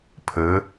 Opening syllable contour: rising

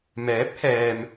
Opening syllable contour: rising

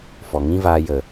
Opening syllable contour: low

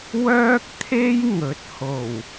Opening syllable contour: high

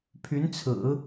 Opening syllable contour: rising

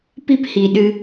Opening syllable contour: high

